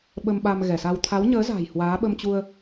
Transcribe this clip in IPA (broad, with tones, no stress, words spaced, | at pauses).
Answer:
ɓə˧mɓa˧mɣɛ˧˩sa˧w t̪ʰa˨˦wɲəː˨˦za̤˨˩j hwaː˨˦ɓə˧mt͡ɕu˧ə̯